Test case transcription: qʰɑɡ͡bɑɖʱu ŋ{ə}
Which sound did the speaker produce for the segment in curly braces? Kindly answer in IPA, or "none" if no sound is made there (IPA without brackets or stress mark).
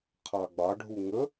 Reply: ə